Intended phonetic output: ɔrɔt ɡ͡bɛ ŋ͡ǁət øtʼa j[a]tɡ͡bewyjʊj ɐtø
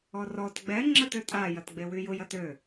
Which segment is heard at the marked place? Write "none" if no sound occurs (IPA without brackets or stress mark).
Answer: ɐ